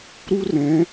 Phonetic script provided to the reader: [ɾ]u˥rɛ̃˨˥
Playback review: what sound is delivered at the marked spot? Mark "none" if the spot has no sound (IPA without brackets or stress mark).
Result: ɾ